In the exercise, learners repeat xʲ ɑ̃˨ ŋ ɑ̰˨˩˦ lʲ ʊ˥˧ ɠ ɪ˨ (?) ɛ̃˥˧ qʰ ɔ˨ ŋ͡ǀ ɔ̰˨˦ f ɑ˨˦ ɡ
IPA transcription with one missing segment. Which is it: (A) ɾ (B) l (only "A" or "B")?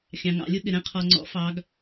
A